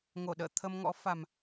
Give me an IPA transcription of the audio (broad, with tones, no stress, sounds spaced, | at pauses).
ŋ o˧˩ ɗ ə̰ː˧˨ t̪ʰ ə˧ m ŋ ɔ̰˧˥ f a˨˩ m